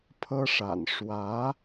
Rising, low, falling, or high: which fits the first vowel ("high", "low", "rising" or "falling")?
high